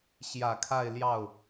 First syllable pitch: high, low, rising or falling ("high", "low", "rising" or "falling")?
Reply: low